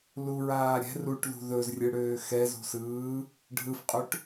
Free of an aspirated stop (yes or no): yes